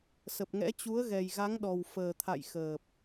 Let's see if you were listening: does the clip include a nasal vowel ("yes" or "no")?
no